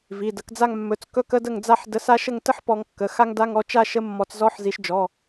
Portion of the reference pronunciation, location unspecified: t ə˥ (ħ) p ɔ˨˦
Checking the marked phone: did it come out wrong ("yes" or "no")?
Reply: no